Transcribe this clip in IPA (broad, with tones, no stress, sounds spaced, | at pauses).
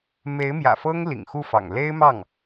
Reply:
m e˧˥ ɪ̯ m j ä̰˨˩ f ɤ˥ ŋ l ḭ˨˩ ŋ x u˥˩ f ɑ̰˨˩ ŋ l e˥ ɪ̯ m ɑ˥˩ ŋ